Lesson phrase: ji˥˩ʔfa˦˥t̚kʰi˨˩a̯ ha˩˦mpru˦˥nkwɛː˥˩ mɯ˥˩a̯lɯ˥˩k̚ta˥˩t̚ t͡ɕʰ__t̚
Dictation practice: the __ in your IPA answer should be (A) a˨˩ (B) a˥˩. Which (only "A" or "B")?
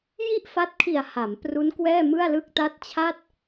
B